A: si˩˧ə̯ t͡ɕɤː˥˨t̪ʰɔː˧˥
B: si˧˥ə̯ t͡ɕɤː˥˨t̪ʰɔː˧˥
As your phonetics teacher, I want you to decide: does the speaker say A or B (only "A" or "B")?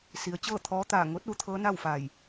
A